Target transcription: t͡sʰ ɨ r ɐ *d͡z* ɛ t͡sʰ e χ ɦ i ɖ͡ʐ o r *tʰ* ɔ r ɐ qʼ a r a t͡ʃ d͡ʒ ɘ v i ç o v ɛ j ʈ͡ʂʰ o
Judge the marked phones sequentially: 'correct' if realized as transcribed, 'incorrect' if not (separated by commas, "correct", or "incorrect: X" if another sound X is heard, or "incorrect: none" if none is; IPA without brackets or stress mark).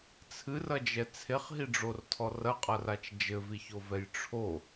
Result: incorrect: d͡ʒ, correct